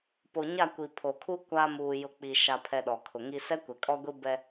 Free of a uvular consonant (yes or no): yes